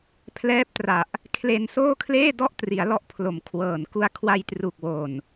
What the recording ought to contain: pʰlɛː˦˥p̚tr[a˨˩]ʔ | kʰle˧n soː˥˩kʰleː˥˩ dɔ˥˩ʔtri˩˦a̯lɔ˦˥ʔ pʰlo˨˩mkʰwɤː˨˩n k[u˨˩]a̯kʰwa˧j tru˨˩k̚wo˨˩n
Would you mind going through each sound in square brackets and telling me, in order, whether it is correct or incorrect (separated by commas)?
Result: correct, incorrect